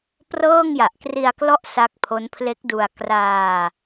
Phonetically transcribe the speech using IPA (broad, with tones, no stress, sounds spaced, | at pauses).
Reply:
p r ɤː˥˩ ŋ j a˨˩ ʔ k r i˧ a̯ k l ɔ˦˥ ʔ s a˦˥ k̚ pʰ o˦˥ n pʰ l e˦˥ k̚ d u˧ a̯ k r aː˧